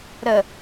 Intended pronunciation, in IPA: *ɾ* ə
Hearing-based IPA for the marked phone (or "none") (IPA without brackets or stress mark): ɾ